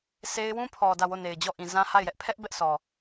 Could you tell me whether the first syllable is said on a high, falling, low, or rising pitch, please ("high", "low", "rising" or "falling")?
high